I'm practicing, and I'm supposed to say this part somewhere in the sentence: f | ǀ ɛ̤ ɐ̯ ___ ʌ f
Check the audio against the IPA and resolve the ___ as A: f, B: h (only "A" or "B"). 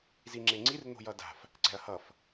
B